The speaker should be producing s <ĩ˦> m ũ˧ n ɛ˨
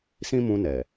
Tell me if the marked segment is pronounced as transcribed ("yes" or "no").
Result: yes